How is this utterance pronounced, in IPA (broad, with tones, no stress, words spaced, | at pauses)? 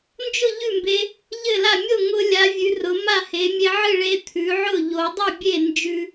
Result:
nd͡ʒʊ˥˩ ʎʉ˥˩mbe˧ | ʎɘ˥˩la˥˩ mʲo˥˩ŋʊ˧lʲa˩˧ vʲʉ˩˧rʊ˩˧ ma˥˩he˩˧ mʲe˧ʕɨ˥˩ɭe˧ t̪ʰʉ˩˧ʕʊ˥˩ ʎo˩˧dˤʉ˥˩bʲe˥˩ nd͡ʒʉ˧